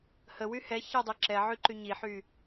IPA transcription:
h ə w y h ɛ ç ɛ dˤ i ǁ ɛ ʕ y ǃ y ɲ i ħ y

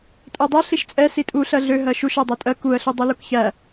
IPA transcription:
tʼ æ dˤ æ ɬ i ʃ t͡sʼ ɛ s i tʼ u ɬ ɜ ɮ ø ɦ ɜ ʃ u ʃ æ dˤ ɜ tʼ ɜ k u ə̯ ɬ u dˤ u l u k ç æ

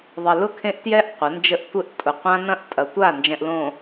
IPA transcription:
ðˤ ɘ˨ l ʊ˦˨ kʰ ẽ˦ ʔ t j ɛ˦ ʔ qʷ ɐ˨˦ n d͡ʒ ə˦ ʔ tʷ ɘ˦ ʔ tʼ ʊ˨ qʷ ã˦ n ɐ̃˦˨ ʔ tʼ ɐ˨ tʷ a˦˨ n d͡ʒ ɛ̃˨ ʔ l õ˨

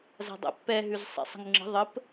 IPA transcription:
z a̤ dˤ ɛ̰ pː ɛ ɦ ʉ z sˤ ɛ̰ sˤ ə̤ ŋ ŋ͡ǁ ə̤ ðˤ ə p

